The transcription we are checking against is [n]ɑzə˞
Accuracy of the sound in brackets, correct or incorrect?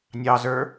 incorrect